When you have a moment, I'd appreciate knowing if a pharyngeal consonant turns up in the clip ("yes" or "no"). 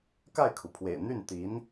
no